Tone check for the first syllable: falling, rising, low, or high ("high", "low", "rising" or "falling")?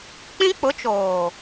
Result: high